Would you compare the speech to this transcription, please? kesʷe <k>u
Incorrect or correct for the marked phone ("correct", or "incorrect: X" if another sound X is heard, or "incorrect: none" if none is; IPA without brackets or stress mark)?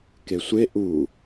incorrect: ʔ